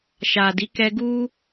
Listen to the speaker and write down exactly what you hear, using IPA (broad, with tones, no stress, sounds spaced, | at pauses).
ʃ a˨ d i˨˦ k ɛ˧ ɡ u˦